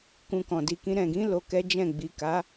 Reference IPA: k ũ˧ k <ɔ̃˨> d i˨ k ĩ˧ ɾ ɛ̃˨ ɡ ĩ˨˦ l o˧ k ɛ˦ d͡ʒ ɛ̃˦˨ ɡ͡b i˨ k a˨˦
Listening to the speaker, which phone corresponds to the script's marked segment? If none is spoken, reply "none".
ɔ̃˨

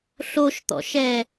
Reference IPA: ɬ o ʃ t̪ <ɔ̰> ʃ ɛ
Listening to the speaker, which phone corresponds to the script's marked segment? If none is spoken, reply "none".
ɔ̰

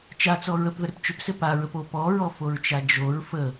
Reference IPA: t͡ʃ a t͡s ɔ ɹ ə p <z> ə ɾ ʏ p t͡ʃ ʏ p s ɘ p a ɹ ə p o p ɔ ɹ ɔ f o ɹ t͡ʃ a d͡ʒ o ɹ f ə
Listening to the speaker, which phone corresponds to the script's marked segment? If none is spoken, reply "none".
ð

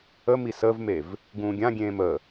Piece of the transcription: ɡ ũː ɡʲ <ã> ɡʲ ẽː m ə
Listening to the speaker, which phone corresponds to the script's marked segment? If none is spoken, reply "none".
ã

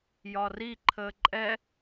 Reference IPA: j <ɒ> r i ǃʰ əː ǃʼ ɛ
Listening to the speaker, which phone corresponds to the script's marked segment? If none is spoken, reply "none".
ɒ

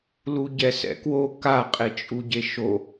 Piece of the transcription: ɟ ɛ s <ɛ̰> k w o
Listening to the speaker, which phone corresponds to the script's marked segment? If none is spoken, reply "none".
ɛ̰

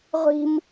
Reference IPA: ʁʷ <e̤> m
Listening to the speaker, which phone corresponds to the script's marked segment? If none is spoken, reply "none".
i̤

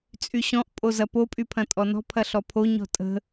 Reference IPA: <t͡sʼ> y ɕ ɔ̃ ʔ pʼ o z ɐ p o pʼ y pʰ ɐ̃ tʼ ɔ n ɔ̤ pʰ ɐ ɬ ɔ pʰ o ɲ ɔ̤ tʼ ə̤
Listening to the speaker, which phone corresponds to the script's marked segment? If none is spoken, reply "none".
t͡sʼ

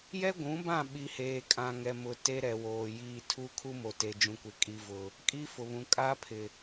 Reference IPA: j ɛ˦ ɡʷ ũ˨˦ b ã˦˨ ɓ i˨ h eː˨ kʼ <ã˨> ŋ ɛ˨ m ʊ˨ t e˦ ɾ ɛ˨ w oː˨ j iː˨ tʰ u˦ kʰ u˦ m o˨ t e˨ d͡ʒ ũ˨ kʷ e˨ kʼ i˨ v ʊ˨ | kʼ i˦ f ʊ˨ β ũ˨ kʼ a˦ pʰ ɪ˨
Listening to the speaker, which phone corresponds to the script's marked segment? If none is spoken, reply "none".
ã˨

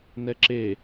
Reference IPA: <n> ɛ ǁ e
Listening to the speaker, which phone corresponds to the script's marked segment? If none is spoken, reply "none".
n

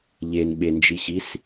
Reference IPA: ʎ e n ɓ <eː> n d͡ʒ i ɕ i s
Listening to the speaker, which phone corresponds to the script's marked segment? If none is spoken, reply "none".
e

